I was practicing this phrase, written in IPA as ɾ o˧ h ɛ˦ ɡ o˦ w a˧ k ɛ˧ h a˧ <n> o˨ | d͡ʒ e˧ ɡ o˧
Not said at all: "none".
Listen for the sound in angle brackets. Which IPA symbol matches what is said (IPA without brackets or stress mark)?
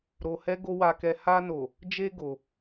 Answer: n